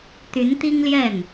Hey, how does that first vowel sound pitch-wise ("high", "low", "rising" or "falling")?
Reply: rising